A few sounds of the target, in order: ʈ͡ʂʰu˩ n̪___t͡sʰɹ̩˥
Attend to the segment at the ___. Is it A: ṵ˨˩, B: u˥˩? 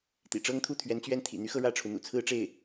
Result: A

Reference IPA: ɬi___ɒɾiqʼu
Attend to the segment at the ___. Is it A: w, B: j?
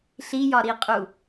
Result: B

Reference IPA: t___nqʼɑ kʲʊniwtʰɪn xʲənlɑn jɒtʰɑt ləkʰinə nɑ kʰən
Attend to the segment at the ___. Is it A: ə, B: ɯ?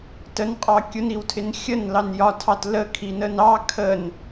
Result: A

